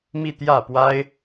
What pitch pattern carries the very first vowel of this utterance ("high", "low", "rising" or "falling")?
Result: falling